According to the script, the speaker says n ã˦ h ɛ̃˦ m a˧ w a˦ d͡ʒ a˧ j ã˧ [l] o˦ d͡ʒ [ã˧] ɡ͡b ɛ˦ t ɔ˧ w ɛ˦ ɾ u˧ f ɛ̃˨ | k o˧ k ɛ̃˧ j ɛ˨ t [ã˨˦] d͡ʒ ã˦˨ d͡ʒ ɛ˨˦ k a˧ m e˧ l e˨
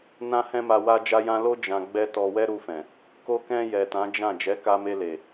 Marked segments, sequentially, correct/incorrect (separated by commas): correct, correct, correct